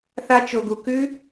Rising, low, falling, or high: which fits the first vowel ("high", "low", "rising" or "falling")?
high